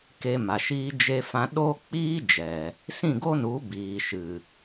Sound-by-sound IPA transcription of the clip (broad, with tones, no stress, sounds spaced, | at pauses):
k e˧ m a˨ ʃ iː˧ d͡ʒ e˧ f ã˧ ɗ oː˦ k͡p iː˦ d͡ʒ ɛ˨ | s ĩ˦˨ ɡ o˦ n u˨˦ b iː˨ ʃ ɨ˨